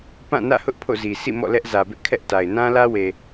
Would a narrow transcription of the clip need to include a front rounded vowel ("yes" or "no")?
no